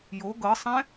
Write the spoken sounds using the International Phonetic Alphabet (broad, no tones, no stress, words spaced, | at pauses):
jo ɡɤsˤɛ̃